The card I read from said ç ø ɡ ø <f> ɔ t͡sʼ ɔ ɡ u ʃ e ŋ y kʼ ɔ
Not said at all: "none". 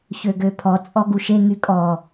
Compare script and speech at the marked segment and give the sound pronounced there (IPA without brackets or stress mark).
pʰ